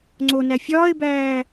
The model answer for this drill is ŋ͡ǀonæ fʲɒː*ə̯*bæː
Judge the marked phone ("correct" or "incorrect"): incorrect